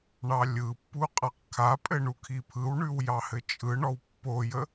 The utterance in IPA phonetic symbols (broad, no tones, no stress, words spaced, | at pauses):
ɳɑlʲɯpːu qʼaqkʰapʼɘ ɳukʰipʰɯwɳʉw jɑhɘt͡ʃʼɯɳɔw pːojə